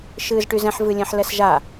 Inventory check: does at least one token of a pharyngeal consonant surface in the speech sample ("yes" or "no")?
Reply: yes